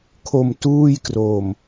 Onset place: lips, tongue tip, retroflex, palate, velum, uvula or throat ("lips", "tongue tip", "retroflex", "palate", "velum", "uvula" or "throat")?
velum